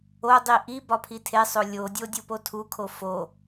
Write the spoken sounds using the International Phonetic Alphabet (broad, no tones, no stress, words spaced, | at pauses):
odˤi ʔi bɒpʰitʰesˤo lʲodʲo dʲopotʰukʰo fo